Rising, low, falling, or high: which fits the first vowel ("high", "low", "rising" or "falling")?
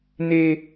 high